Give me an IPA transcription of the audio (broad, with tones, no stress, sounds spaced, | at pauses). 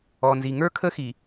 ɔ˨ n z i˨ ŋ ə˞˦ kʰ ə˦ x i˨